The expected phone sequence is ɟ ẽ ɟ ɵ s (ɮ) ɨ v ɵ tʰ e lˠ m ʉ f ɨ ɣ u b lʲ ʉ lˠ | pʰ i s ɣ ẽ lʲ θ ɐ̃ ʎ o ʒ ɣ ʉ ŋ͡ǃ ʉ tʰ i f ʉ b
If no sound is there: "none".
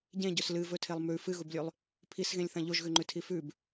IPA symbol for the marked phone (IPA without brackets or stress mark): l